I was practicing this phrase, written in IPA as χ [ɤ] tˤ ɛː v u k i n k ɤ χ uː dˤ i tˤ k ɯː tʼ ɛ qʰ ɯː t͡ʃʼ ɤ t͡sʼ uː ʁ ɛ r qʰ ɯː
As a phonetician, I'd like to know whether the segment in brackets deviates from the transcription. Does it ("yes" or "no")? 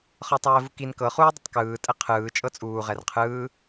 no